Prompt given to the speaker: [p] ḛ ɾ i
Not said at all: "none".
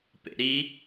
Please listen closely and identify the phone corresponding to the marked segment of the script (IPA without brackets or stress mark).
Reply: p